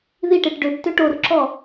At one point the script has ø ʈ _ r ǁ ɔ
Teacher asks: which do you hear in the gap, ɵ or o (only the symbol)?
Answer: o